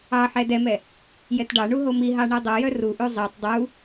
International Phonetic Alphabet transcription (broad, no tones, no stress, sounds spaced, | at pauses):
ɑ ħ ɛ d ɛ m ɛ | j ɛ t ɖ ɑ ɳ u ɦ o m i ɦ ɑ ɳ o dˤ œ j œ r u ʔ ʉ zˤ e tˤ dˤ u